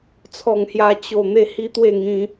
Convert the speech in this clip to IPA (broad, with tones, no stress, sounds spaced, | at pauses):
t͡sʰ ɔ˥˧ ŋ h j a˦ t͡ɕ o˥˧ n̪ e˦ h i˦ t̪ w e˥˧ ŋ ĩ˧